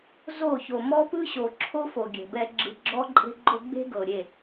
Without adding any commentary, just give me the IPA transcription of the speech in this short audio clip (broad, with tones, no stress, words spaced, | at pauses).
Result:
zo˦˨ço˨ mɔ˦pɯ˦ɕo˨ ǁʰo˦fo˨ɡʲɛ̤˨bɛ˧ ɡ͡ǁɯ˨ ɡ͡ǁɔ˦ǃʼe̤˦ɡ͡ǃo˦ ɡ͡be̤˦ɡɤ˨ɾʲe˦˨